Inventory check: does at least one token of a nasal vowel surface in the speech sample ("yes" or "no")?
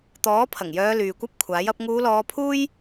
no